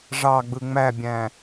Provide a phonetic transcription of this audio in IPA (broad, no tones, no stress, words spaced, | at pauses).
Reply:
ʐɑɡ͡bɯ ŋ͡mæbʲæ̃